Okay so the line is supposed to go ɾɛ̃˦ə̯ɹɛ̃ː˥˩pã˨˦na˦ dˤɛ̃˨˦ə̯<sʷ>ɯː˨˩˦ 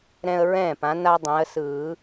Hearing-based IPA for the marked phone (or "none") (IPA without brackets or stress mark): s